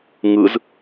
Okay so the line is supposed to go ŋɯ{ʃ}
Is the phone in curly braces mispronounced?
yes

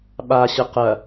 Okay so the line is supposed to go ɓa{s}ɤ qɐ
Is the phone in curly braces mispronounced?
yes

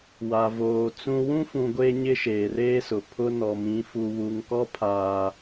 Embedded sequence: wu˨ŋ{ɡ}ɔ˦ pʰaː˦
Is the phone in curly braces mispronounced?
yes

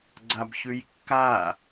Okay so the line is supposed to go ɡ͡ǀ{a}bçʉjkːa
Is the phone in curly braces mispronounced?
no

